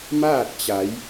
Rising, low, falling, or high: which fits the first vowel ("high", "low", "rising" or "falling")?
falling